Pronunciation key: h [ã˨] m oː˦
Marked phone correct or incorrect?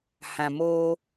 correct